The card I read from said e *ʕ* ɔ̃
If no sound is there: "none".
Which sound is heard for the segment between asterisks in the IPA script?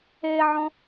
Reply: ʕ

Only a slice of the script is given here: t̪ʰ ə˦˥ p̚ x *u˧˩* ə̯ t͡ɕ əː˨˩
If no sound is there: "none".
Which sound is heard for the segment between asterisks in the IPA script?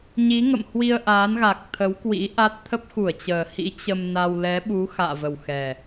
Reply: u˧˩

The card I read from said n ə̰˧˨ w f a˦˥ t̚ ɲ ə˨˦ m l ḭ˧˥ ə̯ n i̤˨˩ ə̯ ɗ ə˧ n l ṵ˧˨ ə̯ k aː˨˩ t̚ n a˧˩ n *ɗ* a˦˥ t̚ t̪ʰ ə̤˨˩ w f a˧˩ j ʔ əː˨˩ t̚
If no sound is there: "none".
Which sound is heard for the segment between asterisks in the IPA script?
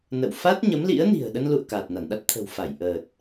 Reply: ɗ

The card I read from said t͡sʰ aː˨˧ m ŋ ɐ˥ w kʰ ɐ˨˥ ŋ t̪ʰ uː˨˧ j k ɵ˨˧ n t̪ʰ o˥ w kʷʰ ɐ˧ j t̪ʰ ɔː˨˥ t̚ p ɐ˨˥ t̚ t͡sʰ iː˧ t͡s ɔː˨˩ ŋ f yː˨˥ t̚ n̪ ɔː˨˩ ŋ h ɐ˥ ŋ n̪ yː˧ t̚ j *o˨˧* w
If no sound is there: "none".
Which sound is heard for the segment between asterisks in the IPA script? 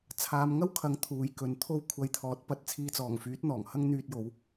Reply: o˨˧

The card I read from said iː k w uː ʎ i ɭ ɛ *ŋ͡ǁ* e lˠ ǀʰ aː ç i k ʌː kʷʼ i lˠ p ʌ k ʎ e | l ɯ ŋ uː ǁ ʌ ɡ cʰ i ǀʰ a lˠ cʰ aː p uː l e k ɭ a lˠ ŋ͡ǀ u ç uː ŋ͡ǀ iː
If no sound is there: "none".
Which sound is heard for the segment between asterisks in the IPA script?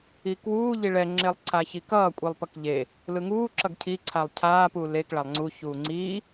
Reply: ŋ͡ǁ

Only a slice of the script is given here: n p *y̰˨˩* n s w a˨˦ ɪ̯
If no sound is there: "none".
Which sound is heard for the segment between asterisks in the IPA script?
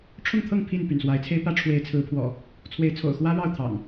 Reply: y̰˨˩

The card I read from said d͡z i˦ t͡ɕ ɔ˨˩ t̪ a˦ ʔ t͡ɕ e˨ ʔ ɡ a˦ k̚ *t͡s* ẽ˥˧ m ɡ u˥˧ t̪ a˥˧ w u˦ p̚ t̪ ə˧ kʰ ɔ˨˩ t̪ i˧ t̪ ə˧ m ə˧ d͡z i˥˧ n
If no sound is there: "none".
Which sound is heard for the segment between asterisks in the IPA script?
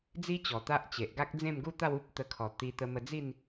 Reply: d͡z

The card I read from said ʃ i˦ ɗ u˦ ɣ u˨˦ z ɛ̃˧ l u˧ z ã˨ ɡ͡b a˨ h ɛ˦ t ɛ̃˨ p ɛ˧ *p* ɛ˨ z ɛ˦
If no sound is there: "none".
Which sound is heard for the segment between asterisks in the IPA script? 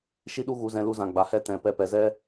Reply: p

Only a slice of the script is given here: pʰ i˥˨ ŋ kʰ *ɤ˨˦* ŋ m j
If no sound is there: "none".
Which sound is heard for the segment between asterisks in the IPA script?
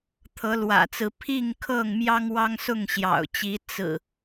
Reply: ɤ˥˨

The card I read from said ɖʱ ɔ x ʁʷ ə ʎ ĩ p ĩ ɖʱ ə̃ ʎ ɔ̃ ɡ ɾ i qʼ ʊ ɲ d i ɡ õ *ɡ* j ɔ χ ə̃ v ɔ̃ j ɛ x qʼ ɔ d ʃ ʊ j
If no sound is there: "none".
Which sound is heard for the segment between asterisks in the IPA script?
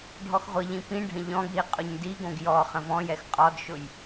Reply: ɡ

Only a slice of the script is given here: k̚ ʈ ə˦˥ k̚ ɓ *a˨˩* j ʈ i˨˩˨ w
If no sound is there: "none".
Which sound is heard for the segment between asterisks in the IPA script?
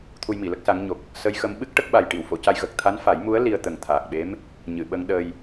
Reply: a˨˩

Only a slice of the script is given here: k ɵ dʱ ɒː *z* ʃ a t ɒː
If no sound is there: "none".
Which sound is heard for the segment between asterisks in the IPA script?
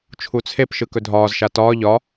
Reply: z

